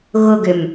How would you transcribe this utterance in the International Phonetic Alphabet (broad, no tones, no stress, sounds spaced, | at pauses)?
ɣ ʊ ɡ ʏ m